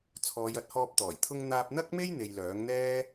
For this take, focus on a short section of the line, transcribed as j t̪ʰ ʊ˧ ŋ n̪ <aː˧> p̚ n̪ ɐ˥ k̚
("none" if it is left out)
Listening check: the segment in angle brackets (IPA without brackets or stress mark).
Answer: aː˧